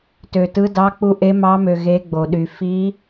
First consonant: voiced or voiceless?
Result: voiceless